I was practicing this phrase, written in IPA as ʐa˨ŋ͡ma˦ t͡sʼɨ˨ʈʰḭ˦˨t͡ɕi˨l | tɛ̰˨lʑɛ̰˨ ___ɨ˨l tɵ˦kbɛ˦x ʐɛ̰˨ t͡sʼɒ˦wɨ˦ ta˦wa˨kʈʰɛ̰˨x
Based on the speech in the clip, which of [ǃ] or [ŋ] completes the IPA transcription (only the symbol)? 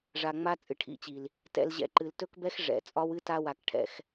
ǃ